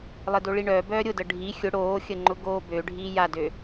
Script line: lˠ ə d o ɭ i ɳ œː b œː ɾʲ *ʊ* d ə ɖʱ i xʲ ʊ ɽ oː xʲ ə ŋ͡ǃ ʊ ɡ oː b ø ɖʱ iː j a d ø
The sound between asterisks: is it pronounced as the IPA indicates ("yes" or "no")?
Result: yes